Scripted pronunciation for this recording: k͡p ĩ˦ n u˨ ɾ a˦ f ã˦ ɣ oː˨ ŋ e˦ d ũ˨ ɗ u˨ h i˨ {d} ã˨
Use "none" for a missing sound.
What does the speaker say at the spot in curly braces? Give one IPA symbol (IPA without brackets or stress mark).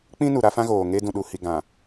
ɡ